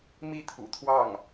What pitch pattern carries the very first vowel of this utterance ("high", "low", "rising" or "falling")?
falling